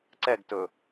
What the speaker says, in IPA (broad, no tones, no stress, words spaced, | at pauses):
ǀɛɡtɵ